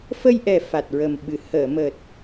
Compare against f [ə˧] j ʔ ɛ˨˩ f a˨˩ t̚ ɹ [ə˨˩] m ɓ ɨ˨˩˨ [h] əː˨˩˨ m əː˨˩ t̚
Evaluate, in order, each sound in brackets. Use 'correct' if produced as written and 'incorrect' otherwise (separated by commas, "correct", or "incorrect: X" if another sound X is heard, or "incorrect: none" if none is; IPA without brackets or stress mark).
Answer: correct, correct, correct